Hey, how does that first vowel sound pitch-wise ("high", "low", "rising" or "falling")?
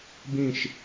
falling